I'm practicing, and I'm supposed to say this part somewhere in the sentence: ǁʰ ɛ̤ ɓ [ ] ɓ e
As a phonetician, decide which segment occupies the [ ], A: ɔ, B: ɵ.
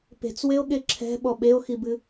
A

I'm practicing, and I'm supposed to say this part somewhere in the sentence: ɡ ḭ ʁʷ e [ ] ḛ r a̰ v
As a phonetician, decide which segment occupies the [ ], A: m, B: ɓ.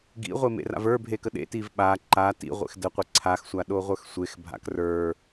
A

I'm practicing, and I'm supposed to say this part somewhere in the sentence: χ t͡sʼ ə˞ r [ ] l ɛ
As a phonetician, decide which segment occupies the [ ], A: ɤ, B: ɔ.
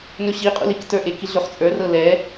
A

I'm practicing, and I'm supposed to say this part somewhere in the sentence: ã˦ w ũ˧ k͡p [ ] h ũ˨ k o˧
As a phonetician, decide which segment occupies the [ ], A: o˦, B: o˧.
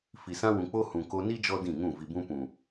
A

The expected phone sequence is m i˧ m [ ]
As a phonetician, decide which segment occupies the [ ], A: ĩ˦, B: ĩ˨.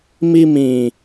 B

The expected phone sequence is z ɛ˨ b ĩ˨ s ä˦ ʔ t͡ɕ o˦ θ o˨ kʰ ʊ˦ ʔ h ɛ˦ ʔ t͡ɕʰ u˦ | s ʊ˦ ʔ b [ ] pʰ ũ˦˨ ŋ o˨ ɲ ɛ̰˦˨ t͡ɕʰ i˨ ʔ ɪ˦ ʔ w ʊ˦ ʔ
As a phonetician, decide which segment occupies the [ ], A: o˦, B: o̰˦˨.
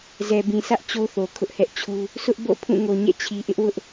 B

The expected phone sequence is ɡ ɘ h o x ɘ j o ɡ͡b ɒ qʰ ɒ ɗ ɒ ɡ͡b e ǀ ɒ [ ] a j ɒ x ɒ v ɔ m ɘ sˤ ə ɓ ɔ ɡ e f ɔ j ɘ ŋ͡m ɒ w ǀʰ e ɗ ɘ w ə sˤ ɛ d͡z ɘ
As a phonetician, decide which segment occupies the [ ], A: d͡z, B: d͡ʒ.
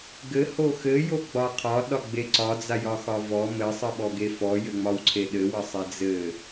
A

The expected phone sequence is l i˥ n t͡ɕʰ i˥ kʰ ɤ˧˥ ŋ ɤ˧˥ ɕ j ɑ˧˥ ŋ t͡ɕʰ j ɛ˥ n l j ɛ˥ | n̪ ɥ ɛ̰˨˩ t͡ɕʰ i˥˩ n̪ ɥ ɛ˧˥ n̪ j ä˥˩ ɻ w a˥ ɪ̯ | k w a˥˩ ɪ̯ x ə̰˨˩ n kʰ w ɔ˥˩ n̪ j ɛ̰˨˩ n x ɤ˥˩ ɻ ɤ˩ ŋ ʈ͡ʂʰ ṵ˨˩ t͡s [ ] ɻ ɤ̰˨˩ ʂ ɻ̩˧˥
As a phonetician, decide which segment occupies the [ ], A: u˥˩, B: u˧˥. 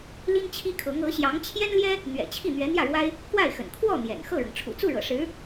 A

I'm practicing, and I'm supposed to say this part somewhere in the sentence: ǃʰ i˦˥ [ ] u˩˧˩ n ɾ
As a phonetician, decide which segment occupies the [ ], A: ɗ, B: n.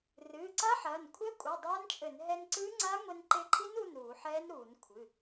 B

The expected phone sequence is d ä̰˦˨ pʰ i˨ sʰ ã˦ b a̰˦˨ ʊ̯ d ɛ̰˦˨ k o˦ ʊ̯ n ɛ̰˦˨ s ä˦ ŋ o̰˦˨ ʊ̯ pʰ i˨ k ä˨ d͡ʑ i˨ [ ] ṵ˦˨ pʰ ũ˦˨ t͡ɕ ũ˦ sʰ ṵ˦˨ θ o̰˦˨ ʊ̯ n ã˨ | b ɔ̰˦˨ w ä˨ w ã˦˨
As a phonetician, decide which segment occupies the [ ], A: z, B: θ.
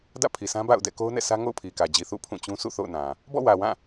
B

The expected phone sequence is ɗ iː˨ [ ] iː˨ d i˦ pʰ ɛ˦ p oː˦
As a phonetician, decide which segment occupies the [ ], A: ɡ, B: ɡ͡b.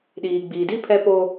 B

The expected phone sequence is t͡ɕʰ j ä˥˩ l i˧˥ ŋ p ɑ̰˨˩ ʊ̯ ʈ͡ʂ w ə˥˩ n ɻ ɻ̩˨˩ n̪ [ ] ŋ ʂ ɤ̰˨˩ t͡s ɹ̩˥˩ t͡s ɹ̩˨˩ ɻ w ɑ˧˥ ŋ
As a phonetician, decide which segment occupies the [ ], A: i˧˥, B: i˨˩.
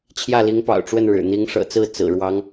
A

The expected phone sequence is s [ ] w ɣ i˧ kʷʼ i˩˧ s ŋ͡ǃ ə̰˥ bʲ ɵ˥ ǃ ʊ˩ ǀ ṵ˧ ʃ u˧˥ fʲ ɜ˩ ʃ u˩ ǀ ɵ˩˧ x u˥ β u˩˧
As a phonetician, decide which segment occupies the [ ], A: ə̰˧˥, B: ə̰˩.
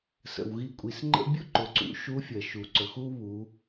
B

